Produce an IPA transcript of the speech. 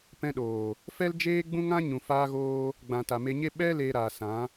pɛ̃˧ɗoː˨ | fɛ˦ld͡ʒeː˦ ɡ͡bũ˦ŋã˦ ɲũ˨faː˧ɣoː˧ | ɡ͡bã˨ ta˨me˧ɲe˦ ɓɛ˦ leː˧ɾaː˨ sã˨˦

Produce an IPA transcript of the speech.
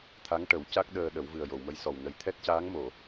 t̪ʰa˧˥ŋʈə˨˩˦wca˦˥k̚ ɗəː˧ɗə˨˩˦w vɨ˨˩ə̯jo˨˩˨wmə˧˥jsɔ˨˩w nə˨˩jt̪ʰɛ˦˥t̚caː˧˥ŋmo˨˩˨

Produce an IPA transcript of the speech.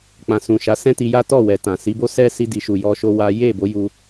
k͡pã˨sũ˨ʃa˨˦sɛ̃˦ ti˧ja˦ tɔ˦˨wɛ˨tã˨ si˨˦bo˦ sɛ˦ si˦di˧ ʃu˧jɔ˦ʃo˦wa˦ je˦˨bo˨˦ ju˧

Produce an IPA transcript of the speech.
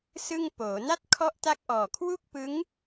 sɯ˥˩ŋ poː˩˦na˥˩t̚ kʰɔ˥˩ʔta˥˩k̚ ʔɔː˨˩kʰwu˥˩k̚pɯ˦˥ŋ

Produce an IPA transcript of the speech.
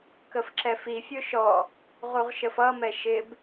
kəfǁɛfifʲʊ ʃɔ | ʁuʁʃəfʌmɛ ʃɪb

